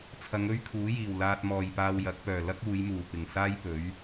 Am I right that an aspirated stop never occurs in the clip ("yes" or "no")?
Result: no